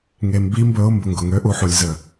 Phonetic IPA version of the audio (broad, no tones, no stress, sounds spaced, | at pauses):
ŋ e m b i m b ɵ ʊ̯ m b ʊ ŋ ɡ ʊ ŋ ø ʔ u ħ u lʲ z ə